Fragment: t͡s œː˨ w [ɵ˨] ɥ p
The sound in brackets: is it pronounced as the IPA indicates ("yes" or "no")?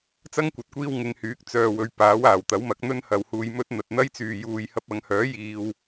yes